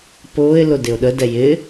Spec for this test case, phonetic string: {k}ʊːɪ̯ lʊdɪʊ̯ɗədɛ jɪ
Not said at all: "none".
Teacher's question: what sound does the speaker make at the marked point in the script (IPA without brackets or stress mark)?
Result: p